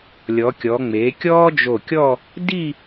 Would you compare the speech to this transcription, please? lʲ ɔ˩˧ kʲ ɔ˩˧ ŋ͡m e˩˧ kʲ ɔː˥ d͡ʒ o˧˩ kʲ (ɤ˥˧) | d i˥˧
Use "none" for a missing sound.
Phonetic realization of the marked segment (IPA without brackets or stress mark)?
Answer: ɔ˥˧